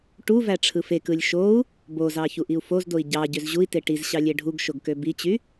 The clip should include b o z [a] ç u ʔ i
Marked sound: incorrect: ɑ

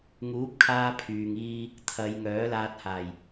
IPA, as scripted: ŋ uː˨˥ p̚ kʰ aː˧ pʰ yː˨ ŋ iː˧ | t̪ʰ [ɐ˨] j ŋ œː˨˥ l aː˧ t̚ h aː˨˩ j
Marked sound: incorrect: ɐ˨˧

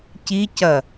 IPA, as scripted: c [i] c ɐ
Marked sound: correct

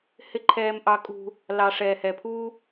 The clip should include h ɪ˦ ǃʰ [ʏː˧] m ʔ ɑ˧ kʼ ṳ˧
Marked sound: incorrect: ɛː˧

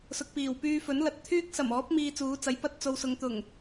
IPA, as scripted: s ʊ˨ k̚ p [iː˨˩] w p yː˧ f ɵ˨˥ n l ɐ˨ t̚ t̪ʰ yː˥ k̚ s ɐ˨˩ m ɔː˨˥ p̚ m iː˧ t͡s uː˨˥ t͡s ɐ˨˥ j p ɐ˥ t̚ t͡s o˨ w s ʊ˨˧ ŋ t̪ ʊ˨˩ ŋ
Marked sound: correct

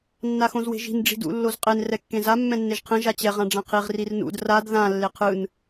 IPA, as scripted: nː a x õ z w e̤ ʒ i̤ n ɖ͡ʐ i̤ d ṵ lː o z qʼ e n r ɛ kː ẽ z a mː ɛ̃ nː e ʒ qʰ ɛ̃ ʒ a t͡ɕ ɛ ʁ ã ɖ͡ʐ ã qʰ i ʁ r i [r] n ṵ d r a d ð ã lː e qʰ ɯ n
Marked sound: correct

